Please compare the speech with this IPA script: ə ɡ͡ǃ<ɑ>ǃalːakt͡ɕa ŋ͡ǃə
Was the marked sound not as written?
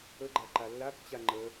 yes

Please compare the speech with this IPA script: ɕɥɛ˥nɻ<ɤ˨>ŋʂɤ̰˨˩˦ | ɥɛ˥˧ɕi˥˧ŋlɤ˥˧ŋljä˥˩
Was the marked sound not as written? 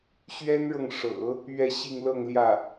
no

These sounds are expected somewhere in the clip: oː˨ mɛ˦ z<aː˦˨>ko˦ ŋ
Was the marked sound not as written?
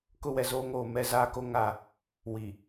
yes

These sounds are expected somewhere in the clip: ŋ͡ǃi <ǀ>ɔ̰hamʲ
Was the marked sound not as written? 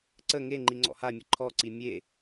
yes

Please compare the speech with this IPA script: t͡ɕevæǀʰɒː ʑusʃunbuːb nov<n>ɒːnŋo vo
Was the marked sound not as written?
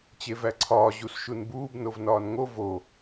no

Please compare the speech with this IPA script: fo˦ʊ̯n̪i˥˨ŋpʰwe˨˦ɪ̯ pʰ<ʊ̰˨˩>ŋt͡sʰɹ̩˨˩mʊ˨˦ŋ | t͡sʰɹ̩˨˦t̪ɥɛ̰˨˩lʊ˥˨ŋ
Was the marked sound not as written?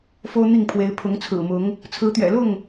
yes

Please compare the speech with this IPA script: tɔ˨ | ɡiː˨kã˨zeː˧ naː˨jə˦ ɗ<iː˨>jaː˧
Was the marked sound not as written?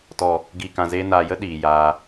no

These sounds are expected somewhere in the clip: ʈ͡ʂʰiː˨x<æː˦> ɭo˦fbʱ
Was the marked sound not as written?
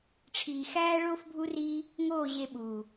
no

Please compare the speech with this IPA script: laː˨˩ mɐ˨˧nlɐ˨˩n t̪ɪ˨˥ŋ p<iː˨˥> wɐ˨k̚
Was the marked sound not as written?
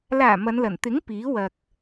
no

